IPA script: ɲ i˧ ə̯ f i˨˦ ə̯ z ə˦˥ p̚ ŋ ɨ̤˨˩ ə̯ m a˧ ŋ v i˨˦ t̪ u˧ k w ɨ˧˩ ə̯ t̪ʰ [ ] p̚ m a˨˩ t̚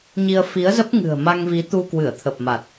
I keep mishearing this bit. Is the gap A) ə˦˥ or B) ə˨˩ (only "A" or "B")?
B